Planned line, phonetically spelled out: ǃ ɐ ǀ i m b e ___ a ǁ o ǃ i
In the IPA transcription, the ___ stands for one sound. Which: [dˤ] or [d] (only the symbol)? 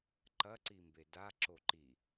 d